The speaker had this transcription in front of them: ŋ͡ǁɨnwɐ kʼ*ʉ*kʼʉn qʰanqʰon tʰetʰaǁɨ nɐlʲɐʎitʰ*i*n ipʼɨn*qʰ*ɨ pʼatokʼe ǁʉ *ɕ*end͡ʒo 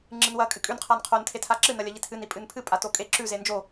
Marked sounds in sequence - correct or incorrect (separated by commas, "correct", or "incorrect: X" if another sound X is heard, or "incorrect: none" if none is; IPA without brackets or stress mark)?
incorrect: ɨ, incorrect: ɨ, incorrect: pʰ, incorrect: z